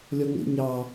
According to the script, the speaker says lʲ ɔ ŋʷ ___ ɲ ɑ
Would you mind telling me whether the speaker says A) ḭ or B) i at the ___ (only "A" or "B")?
A